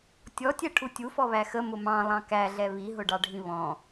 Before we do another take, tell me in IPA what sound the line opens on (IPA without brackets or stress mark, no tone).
tʲ